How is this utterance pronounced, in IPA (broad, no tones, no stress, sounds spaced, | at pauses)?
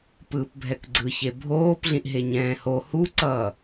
p ɯː p bʱ ɛ k ɡ͡ǀ ɯ ç e bʱ oː p ɮ ĩ ʔ ɦ e ɲ ɛ̃ː h o h u ǀ ʌː